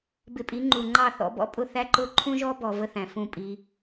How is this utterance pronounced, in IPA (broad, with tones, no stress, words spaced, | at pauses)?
bɪ˧pʼi˨˦ŋ͡ǃu˨ŋ͡ǃɑ˦˨ θɔ̰˧bɔ̰˦pʼʊ˦˨θæ˦ ǃʊ˦ ǃʰũ˦ʒɔ˦bɔ˨ və˦θæ̃˨fũ˦˨pʼi˧